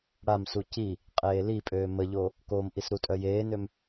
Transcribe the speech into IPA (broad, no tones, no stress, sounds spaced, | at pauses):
ɽ a m s u c i | qʼ eː l i pʼ øː m ə ʎ o | k o m ʔ i s ɾ u tʼ œ j eː n ø m